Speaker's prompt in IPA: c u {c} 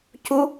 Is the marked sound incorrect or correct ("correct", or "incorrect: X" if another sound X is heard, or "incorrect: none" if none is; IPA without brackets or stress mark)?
incorrect: none